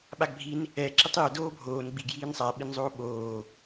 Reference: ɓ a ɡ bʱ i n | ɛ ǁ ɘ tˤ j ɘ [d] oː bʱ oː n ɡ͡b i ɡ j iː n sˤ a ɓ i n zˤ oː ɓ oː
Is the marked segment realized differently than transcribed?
no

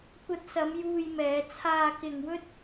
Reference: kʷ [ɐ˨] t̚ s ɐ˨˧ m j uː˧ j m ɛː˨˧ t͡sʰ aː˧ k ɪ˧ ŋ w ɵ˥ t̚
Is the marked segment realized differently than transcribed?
yes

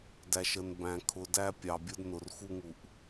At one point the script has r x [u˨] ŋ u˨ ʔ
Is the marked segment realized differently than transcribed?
yes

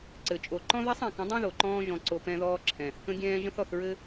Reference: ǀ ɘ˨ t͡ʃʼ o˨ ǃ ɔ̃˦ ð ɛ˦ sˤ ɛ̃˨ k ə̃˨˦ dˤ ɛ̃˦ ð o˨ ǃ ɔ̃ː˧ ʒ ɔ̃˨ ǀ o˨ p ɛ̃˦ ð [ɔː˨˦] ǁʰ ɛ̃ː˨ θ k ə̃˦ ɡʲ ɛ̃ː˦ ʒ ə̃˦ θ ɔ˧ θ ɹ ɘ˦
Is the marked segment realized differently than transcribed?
yes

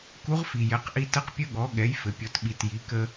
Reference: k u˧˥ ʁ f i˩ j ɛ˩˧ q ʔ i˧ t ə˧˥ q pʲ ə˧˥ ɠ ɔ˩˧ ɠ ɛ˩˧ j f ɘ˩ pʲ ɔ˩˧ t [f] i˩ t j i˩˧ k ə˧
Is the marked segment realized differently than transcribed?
yes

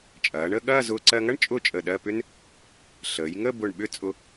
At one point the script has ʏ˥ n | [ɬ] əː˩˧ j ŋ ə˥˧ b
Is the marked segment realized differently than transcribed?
no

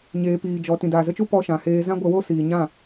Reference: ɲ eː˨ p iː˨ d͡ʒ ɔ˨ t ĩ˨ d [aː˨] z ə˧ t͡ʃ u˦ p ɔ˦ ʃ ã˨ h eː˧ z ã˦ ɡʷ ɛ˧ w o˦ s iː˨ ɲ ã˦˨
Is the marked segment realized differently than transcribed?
no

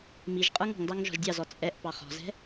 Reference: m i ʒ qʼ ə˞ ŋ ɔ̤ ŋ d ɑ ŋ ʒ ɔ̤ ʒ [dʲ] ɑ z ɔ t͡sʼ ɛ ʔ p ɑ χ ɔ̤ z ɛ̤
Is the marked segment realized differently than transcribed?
no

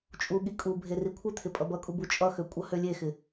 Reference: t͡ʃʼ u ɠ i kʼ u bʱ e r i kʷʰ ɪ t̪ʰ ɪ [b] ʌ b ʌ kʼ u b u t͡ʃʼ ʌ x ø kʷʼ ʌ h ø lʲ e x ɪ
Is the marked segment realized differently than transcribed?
yes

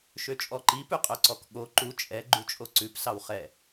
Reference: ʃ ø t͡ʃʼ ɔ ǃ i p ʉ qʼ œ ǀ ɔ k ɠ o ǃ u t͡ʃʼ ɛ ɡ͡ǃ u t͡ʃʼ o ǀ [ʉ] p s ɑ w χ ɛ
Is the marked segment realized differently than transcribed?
no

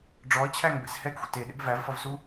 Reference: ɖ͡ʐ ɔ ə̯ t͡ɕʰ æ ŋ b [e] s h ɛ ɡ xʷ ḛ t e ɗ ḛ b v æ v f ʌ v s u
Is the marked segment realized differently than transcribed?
yes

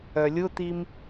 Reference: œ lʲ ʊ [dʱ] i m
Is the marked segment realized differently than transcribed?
yes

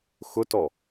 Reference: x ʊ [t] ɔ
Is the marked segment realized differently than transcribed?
no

